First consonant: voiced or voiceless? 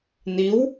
voiced